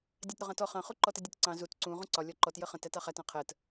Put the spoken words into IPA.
dʲɑtɾʊʁɑ̃tɔ χɑ̃ χuǃɔtədʲʊt ǀɑ̃ zut ǀũ ʁũǀɒ lʲɒǃɔt jəχə̃t ætɑχæt ɑ̃qʰɜt

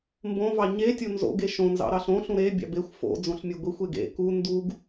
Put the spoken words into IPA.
mbõvɑ ɲetʲo nzo̰ɡ eʃõnzɑ̰ ɾɑɬõɬũ ɾebʲɑ̰ bexʷ fo̰ d͡zõɬmʲeɡʷixʷeɡ ḛ ku nduɡ

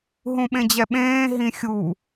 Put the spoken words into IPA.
ɦũɓẽd͡ʑɛɓẽː ɦĩxʲu

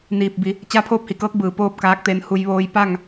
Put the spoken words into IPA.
niː˧˩p̚bi˩˧ | t͡ɕa˧˥pʰoː˥˨p̚hi˩kɤː˧˥k̚ bɯː˧˩poː˥˨p̚kaː˧˥k̚ t̪e˧nhu˧j ʋoː˧jpa˥˨ŋ

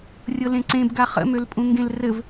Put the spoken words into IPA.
rʲɤlẽǀẽbɡa χə̰mølpʼũ ŋɡẽlrɘv

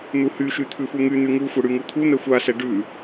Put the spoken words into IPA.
n̪uhyʃy t̪ʰʉfuŋyn̪y ŋuxʷɛ ɽyŋut̪ʰun̪ɛ xʷasɛ ɖʉ

